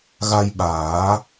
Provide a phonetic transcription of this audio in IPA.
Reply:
ɣ a˧ j ɓ aː˨˩˦

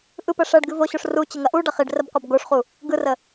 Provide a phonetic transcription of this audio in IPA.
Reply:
ʔ ɯ p ə ʂ ɐ ɖ ɡ ɨ v o ɕ o ʂ r u t͡ɕ ə ŋ ɐ ʔ u ɖ ɐ χ i ɖ r ə b qʷ ɐ b ɡ o ʂ χ u | ɡ ɯ r ə

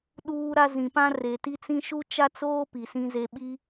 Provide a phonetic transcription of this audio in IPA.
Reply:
ɗ uː˦ ɾ a˦ z ĩ˨ p ã˦ r e˨ t i˦ t͡s ĩ˦ ʃ u˦ t͡ʃ a˦ t͡s oː˦ p i˨ s ĩ˦ z e˦ ɓ i˦

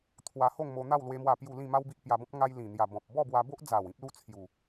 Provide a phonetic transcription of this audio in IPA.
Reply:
t̪ʰ w a˧ h o˥˧ ŋ m o˧ n̪ a˥˧ w l w e˦ m w a˥˧ p j u˥˧ l ĩ˥˧ m a˦ w b i˦ ʔ p j a˧ b ɔ̃˦ p̚ ŋ a˧ j l ĩ˨˩ n̪ j a˨˩ b ɔ̃˨ p̚ b ɔ˥˧ b w a˧ b o˦ ʔ d͡z a˨˩ w ĩ˦ p̚ l u˦ t͡sʰ j u˨˩

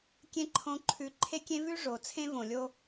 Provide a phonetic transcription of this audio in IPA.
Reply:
kʲ ẽ˦ ǃʰ õ˦ ǃʰ ʉ˧ ǃʰ e˦ kʲ ẽ˦ v ʉ˦ ʐ o˨ t͡sʰ ẽ˦ v õ˨ lʲ o˧

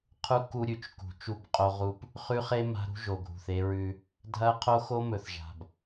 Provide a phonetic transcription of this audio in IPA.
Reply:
qʰ u˦ k u˦ ɾʲ ʉ˨ t͡ʃ k ṳ˨ t͡ʃ u˦˨ b qʼ o˦ ʁ u˦ p | χ ʉ˦ χ e˦ m a̤˦ ɾ ṳ˦ ʒ o˨ ɡʱ ṳ˨ θ e˦ ɹ ʉ˦ | dʱ ɐ˦ qʰ o˦ x o˦ m ɵ˨ θ ʒ a̤˨ b

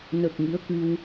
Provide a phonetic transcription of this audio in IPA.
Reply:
n ə˨˩ k̚ ŋ i˧˥ ə̯ k ɨ˧ w

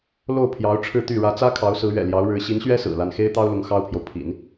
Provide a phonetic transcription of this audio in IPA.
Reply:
l o˥˩ ʊ̯ pʰ j ɑ˧˥ ʊ̯ ʈ͡ʂʰ ɻ̩˥˧ t̪ y˥˩ ɻ ä˧˥ t͡s ä˥ kʰ ɑ˧˥ ʊ̯ s ɹ̩˧˥ ɥ ɛ̰˨˩ l j ɑ˧˥ ʊ̯ ɻ ɻ̩˧˥ ɕ i˧˥ n ɕ ɥ ɛ˥ s ɹ̩˨˩ l a˥ n x e˥ ɪ̯ t̪ ɑ˥ ʊ̯ l ʊ˧˥ ŋ x ɑ˥ ʊ̯ pʰ j o˨ ʊ̯ pʰ ḭ˨˩˦ n

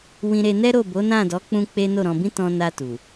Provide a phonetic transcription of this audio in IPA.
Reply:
w ĩ˧ ɾ e˧ n ɛ˦ ɾ o˦˨ b o˨˦ n ã˦˨ d ɔ˨˦ k͡p ũ˦ k͡p e˦ n o˦˨ ɾ ɔ̃˧ b ĩ˦ t ɔ̃˧ n a˧ t u˨

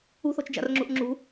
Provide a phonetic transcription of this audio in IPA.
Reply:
ṳ θ ɔ̤ t͡ʃ d͡ʒ a̰ r ŋ͡ǁ ṳ ʔ ŋ͡ǁ ṳ

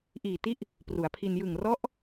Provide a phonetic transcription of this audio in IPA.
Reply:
ʔ iː˨˩ t i˦˥ ʔ | p r u˩˦ a̯ pʰ i˧ n j ɯ˨˩ ŋ r ɔ˦˥ ʔ

